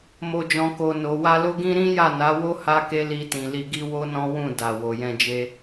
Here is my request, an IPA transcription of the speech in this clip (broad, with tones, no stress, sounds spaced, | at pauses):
m o˨ d͡ʒ ɔ̃˨ k o˨ n o˨ w a˧ l o˦ ɡ ĩ˦ ɾ ĩ˦ j a˦˨ n a˨˦ w o˦ h a˦ k e˦ l i˧ t ĩ˨ l i˧ ɡ i˦ w o˦ n ɔ̃˦ w ũ˦˨ d a˨ w o˨ j ɛ̃˧ d͡ʒ e˦